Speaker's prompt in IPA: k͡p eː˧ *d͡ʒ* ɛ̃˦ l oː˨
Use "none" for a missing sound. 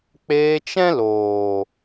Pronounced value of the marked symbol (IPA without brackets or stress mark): t͡ʃ